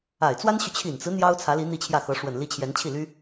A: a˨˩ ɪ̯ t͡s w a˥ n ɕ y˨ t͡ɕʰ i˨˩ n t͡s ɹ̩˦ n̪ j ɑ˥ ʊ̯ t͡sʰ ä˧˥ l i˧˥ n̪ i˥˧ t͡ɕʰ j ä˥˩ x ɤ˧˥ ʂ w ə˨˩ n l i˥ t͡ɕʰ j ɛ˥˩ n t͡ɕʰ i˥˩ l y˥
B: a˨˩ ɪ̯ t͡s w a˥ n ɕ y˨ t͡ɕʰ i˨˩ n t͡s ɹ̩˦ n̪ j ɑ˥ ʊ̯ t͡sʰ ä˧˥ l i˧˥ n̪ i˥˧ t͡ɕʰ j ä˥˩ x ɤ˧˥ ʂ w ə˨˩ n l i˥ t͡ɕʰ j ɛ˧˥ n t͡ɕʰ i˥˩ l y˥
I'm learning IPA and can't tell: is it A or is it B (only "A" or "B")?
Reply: B